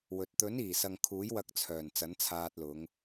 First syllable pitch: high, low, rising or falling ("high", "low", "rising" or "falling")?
low